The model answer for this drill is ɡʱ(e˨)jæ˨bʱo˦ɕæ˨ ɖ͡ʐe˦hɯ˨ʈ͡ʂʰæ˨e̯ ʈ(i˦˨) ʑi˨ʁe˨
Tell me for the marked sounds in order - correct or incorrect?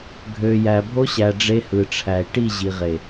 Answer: incorrect, correct

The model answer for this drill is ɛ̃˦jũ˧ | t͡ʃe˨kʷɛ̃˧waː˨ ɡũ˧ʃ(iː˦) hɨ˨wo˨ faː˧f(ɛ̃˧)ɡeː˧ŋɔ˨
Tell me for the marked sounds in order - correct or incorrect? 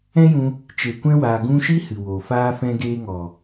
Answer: incorrect, correct

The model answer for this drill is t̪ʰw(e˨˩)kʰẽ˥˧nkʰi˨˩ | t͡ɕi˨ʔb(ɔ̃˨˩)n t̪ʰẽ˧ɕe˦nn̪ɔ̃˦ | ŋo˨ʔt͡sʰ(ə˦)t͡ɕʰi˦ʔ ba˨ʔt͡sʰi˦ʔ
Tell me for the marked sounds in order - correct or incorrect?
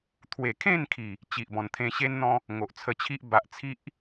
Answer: correct, correct, incorrect

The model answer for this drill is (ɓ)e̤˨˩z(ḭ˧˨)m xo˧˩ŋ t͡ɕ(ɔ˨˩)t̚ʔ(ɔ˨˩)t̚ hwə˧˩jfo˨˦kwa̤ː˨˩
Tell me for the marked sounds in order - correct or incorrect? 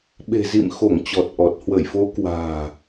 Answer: correct, correct, correct, correct

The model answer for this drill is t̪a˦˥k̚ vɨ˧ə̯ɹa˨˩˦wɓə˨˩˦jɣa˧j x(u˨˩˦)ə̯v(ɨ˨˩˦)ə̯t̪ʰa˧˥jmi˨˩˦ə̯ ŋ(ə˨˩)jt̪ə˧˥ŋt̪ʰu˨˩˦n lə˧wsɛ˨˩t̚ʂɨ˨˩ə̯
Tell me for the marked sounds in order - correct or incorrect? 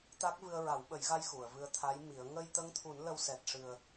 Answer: incorrect, incorrect, incorrect

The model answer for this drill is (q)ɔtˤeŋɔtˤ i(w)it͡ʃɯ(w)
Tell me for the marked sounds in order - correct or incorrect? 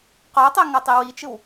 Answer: correct, correct, correct

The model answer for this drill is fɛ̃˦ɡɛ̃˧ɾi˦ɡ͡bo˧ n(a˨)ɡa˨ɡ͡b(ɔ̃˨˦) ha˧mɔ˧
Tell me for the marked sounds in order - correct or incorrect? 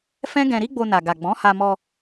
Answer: correct, correct

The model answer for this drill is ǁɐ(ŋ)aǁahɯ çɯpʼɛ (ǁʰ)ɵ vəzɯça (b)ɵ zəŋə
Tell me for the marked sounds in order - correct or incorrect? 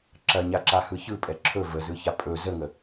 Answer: incorrect, correct, incorrect

